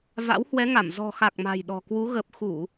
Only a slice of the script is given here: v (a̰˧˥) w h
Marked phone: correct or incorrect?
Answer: correct